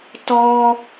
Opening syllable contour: high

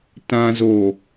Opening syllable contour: low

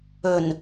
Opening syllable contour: low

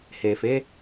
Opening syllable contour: low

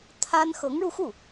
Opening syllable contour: high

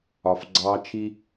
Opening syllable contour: low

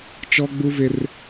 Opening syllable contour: high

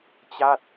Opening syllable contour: falling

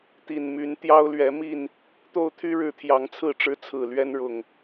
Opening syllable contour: low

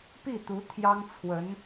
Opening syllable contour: falling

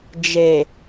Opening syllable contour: low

